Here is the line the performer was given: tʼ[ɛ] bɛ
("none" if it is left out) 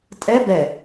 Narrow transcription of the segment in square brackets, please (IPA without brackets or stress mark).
ɛ